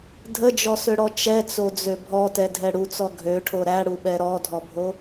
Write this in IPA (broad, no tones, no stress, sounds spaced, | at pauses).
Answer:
dʱ ə d͡ʒ ɔ s ø ɽ ɔ t͡ʃ ɛ t͡s o d͡z ø bʱ ɔ t ɛ dʱ ɛ ɽ u t͡s ɔ ɡʱ ø ʈʰ o ɾ æ ɽ u ɓ ɛ ɾ ɔ dʱ ɔ bʱ o